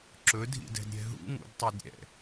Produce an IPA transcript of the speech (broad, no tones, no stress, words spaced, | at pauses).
ǁɵdʱḭdɛ̤dɾʲɛ̤ ɦṵŋṵdtˤed ɾʲɛ̰